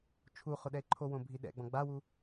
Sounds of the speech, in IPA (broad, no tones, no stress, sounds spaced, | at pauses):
t͡ʃʰ u χ ʊ ɗ ɛ e̯ ǃʰ o w õ bʱ i ɗ ɛ̰ ɡ͡b ɔ̃ ɡ͡b a w u